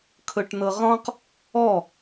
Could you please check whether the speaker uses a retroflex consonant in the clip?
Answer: yes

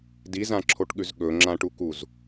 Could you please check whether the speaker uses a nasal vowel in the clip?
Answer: yes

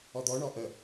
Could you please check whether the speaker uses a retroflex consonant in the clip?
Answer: yes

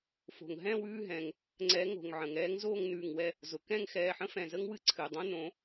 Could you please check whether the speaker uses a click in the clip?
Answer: yes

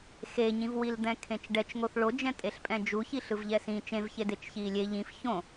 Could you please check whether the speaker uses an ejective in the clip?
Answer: yes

